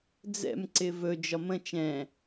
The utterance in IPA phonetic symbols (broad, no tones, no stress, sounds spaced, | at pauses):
d͡z ɛ̰ m ǀ ɪ v ɵ d͡ʒ ɒ m ə̃ t͡ʃ ɛ̃